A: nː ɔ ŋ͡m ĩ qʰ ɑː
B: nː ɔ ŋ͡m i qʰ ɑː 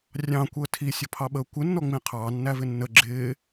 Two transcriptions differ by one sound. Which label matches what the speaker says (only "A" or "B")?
A